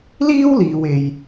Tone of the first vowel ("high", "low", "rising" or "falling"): high